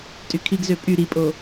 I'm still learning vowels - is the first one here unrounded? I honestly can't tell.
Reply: no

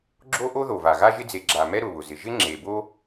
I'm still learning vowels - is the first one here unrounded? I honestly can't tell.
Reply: no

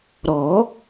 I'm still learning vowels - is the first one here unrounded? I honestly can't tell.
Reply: no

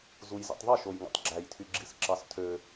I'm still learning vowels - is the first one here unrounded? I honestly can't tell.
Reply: no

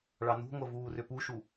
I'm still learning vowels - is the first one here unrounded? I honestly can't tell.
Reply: yes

